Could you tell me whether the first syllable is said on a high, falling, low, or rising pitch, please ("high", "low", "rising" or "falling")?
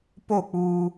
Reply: falling